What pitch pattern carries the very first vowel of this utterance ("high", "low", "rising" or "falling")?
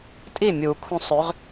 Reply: falling